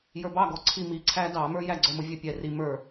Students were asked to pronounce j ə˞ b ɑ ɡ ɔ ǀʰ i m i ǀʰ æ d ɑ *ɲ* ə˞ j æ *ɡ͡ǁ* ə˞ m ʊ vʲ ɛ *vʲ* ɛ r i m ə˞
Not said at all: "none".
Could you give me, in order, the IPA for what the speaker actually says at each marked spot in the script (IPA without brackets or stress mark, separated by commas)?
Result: m, ɡ͡ǀ, pʲ